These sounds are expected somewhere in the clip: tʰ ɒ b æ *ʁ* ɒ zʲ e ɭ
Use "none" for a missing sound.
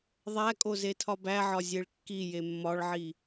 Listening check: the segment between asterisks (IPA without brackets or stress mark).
ʕ